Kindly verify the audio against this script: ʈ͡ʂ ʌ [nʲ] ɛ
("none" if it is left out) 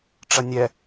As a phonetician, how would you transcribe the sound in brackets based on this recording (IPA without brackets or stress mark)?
nʲ